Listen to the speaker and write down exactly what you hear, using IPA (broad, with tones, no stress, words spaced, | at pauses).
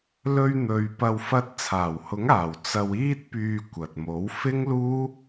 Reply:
lɵ˧ɥn̪ɵ˨ɥ pɐ˧wfɐ˧t̚ t͡sʰaː˨˩whʊ˨˥ŋaː˨˩w t͡sɐ˧w iː˥t̚pyː˧ kʷɐ˨t̚mo˨˥w fɪ˥ŋluː˥